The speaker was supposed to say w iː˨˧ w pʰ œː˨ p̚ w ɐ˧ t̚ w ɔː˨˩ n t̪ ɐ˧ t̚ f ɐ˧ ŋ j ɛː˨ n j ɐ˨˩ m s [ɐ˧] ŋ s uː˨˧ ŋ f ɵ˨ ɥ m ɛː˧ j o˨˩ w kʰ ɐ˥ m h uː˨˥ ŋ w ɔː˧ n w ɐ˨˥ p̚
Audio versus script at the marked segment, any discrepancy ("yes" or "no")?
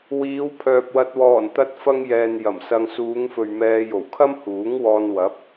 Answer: no